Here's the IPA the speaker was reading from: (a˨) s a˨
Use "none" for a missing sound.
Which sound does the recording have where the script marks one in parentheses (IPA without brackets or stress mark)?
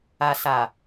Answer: a˨